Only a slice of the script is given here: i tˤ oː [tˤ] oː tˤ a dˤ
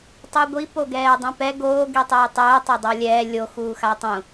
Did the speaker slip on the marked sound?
no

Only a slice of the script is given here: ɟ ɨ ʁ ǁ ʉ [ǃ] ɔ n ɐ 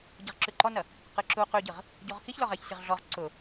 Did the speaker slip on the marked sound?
no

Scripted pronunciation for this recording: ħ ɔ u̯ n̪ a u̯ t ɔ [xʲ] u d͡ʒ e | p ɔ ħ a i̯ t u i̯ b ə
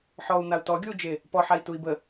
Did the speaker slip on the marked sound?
yes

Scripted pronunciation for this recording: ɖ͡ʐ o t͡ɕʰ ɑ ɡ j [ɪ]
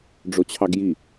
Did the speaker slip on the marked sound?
yes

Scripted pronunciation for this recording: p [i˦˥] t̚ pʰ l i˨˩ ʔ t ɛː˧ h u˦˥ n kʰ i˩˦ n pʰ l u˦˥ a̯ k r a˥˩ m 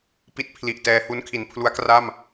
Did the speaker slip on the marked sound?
no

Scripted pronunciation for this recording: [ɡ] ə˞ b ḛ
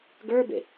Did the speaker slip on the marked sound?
no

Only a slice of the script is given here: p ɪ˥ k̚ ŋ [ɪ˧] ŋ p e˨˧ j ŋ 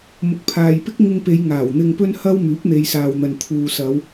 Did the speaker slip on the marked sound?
no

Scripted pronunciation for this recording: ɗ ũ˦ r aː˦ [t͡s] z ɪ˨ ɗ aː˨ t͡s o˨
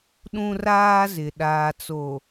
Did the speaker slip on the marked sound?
yes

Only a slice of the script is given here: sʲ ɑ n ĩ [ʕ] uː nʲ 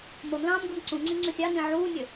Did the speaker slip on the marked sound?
no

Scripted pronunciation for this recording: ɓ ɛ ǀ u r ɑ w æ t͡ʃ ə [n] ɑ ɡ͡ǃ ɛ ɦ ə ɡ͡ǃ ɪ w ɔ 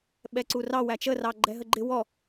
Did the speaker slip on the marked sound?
yes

